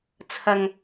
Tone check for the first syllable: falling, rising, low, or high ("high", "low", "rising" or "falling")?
low